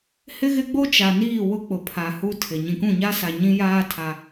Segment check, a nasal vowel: present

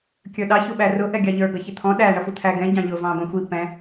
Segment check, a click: absent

